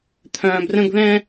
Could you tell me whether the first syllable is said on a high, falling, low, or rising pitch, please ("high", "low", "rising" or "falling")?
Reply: low